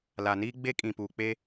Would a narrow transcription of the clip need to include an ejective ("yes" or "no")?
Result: yes